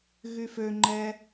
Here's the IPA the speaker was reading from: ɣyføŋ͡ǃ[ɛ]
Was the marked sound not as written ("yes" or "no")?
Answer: no